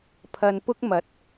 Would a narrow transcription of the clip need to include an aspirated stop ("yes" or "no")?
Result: yes